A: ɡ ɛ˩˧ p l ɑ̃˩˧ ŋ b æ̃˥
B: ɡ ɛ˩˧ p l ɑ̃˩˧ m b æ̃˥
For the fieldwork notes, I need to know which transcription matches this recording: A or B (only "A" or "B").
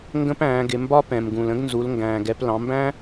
B